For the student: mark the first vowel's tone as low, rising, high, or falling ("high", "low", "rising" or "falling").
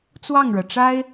falling